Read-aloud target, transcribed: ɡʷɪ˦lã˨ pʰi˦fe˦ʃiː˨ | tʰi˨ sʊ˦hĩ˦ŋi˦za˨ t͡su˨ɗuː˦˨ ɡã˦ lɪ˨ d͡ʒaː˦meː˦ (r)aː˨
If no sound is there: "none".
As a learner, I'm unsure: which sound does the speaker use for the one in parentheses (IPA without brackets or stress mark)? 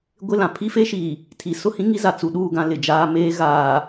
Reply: ɣ